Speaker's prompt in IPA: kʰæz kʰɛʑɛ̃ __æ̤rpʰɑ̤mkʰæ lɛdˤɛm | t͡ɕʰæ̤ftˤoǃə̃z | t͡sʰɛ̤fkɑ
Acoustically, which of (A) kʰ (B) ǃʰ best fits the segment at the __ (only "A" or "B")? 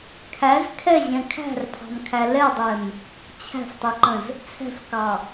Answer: A